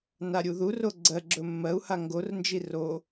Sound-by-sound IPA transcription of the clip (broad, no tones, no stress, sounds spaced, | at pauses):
n a ɾʲ u ð u r o ɡ͡ǀ ɜ ɡ͡ǁ ɵ mː ɜ u̯ h a ŋ ɡ o r n d͡ʒ i r o